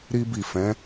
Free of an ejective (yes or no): yes